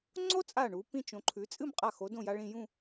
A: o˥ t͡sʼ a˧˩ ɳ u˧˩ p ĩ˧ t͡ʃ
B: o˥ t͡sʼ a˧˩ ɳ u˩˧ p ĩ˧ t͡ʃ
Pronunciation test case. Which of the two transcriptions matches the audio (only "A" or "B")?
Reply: B